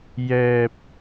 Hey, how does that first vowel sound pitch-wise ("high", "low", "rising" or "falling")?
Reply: low